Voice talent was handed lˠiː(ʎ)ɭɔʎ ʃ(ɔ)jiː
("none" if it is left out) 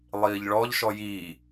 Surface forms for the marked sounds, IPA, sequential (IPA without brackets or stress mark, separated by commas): ʎ, ɔ